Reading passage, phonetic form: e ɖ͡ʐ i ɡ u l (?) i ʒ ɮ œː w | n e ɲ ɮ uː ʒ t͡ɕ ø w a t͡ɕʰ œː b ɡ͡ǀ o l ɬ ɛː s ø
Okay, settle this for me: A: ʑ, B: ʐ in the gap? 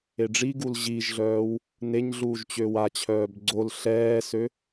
A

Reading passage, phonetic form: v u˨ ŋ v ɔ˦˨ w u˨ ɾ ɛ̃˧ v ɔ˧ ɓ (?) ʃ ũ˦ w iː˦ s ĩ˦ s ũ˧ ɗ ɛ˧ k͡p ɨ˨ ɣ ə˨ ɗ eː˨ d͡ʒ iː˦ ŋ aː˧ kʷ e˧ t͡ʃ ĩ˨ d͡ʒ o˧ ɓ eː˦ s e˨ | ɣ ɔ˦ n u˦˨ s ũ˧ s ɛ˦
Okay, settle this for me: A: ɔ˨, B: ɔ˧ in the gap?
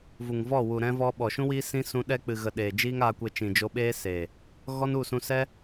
A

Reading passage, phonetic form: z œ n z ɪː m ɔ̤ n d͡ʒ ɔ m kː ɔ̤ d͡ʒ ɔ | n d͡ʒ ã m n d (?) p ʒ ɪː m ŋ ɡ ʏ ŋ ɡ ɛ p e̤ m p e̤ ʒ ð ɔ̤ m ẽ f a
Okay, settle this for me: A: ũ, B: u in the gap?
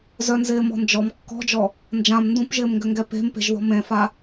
A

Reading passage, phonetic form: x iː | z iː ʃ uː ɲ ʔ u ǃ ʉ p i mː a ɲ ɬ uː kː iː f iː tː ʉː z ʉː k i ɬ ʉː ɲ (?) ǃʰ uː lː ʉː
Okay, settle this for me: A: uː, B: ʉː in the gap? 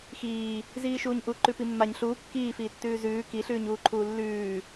A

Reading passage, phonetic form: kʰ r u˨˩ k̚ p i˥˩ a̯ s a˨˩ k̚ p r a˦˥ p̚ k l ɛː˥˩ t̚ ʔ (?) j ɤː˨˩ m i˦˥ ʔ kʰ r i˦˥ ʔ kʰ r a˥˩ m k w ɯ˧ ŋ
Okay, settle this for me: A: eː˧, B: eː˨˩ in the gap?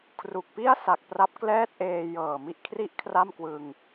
A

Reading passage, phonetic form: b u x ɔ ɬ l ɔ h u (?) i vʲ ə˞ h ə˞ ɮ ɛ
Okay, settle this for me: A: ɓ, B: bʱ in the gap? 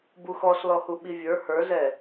A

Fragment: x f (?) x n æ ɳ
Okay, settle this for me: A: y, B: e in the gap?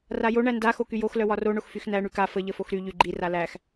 A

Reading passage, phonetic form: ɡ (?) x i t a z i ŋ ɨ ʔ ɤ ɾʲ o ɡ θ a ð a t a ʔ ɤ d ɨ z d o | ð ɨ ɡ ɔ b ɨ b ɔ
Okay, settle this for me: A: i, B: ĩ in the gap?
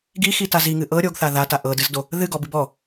A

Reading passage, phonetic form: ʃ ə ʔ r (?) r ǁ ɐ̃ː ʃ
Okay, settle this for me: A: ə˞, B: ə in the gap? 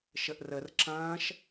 B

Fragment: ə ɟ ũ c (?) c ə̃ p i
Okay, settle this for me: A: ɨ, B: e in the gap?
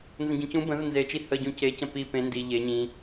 B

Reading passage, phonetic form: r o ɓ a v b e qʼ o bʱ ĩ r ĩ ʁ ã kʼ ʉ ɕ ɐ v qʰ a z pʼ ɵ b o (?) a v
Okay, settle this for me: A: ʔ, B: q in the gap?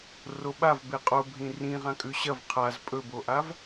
A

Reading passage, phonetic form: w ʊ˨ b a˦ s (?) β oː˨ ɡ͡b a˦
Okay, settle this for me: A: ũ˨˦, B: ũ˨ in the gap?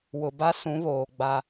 A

